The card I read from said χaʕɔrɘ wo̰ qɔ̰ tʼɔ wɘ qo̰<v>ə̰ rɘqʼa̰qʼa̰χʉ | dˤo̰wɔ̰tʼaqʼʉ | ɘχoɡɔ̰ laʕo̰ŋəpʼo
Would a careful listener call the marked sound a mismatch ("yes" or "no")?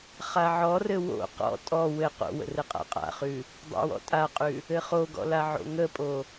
yes